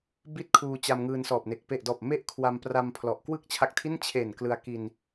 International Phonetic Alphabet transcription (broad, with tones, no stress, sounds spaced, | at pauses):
b i˦˥ t̚ kʰ uː˧ t͡ɕ a˧ m ŋ ɯː˧ n s ɔː˨˩ p̚ n e˨˩ k̚ p e˨˩ ʔ d ɔː˨˩ p̚ m e˥˩ ʔ kʰ w a˧ m p r a˧ m pʰ l ɔ˨˩ ʔ k w ɯ˥˩ k̚ t͡ɕʰ a˦˥ k̚ tʰ i˥˩ n t͡ɕʰ e˨˩ n k l ɯ˧ a̯ k i˧ n